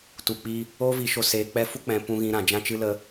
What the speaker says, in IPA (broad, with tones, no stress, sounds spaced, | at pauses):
t u˨ k͡p i˧ | oː˦ v i˧ ʃ o˧ s eː˧ k͡p ɛ˦ f u˦ k͡p ɛ̃˧ p ũ˦ ɣ ĩ˦ ɾ ã˧ d͡ʒ ã˦ t͡ʃ ɨ˦ l ə˦